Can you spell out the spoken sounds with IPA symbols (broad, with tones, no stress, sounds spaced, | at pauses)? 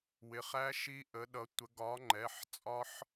w ɪ˩˧˩ χ æ˦˥ ʃ i˦˥ ʔ ə˨˥ ɗ ʌ˨˥ tʷ ə˨˥ ɡ ɒ˨˥ ŋ͡ǃ ɛ˩˧˩ ħ t͡sʼ ɒ˦˥ ħ